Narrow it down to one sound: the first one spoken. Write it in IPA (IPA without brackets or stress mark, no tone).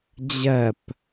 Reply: d͡ʑ